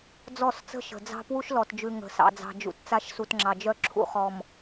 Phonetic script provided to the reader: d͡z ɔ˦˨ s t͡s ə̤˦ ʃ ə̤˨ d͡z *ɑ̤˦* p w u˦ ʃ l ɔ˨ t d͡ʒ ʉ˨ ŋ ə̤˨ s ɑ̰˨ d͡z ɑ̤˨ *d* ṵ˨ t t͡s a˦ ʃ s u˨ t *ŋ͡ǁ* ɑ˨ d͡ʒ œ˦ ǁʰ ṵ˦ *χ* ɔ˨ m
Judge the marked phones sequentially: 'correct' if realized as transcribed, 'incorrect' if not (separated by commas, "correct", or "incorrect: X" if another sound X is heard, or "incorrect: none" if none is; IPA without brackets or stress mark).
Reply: correct, incorrect: d͡ʒ, correct, correct